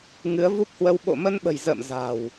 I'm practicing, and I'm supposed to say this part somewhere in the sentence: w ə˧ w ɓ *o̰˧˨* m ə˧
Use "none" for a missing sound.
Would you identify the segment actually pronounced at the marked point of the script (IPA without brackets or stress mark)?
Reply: o̰˧˨